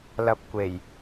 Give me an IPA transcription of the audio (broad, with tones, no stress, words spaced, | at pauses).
lɐ˧p̚kʷe˨˩j